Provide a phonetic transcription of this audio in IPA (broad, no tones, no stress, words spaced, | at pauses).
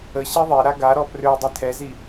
ə ɕeðˤeɾa ɡaɾɔ prø dˤitʰɛzi